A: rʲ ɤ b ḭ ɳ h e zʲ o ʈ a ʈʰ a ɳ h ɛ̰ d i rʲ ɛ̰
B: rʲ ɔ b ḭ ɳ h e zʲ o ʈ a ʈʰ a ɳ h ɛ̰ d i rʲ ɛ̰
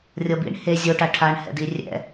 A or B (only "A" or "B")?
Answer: A